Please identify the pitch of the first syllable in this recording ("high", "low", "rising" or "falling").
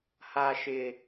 low